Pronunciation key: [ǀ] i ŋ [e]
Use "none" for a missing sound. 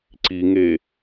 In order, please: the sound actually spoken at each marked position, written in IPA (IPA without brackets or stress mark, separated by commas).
ǀ, e